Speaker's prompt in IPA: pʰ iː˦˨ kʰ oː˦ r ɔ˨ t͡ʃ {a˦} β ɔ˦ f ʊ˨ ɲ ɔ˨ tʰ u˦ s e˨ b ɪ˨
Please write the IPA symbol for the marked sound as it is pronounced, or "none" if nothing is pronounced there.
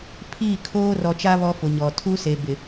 a˦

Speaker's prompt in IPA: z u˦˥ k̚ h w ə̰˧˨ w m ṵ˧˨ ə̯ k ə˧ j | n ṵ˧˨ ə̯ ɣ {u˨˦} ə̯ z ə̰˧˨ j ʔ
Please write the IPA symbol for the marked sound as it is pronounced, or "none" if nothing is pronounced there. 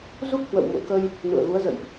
u˨˦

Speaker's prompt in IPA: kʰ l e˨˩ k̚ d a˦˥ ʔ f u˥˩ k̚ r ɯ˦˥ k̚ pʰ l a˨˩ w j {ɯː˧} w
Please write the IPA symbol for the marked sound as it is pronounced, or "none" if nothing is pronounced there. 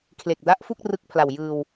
ɯː˧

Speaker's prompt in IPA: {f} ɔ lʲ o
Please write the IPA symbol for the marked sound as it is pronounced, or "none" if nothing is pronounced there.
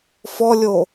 f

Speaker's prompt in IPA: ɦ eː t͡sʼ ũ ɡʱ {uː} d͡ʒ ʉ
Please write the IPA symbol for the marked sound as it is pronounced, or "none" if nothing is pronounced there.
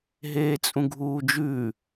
uː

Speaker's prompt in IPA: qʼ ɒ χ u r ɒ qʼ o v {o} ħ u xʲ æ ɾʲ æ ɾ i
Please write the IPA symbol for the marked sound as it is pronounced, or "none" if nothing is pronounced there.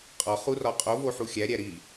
o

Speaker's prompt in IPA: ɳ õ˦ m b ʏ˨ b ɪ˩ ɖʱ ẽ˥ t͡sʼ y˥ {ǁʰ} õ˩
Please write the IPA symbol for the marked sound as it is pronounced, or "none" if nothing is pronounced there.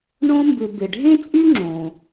ŋ͡ǁ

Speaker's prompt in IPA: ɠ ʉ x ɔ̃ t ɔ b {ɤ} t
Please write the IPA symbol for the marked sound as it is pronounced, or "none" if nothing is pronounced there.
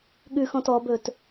ɵ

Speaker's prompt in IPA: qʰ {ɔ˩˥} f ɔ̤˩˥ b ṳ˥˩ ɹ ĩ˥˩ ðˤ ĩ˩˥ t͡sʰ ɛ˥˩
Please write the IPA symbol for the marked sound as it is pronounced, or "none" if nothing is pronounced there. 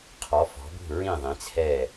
ɔ˩˥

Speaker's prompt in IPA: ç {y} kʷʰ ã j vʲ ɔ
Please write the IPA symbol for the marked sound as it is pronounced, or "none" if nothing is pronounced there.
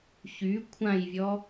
y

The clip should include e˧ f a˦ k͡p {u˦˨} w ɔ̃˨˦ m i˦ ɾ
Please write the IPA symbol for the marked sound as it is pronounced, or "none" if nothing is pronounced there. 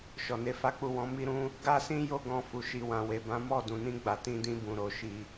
u˦˨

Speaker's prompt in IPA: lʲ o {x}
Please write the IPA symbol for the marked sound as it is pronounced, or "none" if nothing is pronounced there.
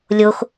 x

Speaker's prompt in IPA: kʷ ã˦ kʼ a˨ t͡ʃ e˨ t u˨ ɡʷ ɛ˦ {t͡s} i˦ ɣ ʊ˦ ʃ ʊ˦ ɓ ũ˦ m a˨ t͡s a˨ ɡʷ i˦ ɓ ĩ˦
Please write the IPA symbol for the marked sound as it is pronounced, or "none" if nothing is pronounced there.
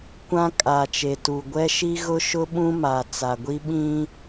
ʃ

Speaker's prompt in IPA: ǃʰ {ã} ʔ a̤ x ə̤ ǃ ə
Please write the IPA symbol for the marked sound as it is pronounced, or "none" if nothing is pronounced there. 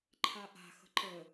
a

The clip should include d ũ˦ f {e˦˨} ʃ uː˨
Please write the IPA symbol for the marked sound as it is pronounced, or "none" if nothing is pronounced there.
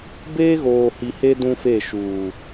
e˦˨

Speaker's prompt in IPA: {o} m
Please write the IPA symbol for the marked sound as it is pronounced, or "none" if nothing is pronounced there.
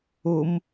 o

